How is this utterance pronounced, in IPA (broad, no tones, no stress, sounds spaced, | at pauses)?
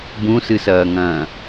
b ũ s ɨ s ɐː ŋ ɐ̃ː